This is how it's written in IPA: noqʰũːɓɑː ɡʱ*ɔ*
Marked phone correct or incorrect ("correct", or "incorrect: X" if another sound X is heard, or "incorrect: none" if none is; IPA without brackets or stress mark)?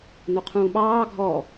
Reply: correct